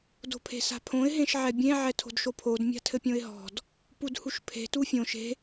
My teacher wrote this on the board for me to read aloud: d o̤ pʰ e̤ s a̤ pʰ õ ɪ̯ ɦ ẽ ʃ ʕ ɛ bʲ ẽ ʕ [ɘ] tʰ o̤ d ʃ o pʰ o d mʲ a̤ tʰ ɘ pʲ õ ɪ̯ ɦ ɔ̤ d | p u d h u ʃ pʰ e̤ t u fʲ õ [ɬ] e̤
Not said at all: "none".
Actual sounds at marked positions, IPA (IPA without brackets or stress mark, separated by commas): ɛ, ʃ